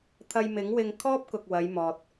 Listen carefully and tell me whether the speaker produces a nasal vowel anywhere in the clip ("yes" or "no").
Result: no